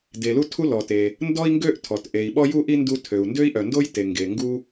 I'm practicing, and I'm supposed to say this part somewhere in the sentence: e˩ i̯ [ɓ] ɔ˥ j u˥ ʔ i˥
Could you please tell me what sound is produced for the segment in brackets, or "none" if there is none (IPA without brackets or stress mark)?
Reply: ɓ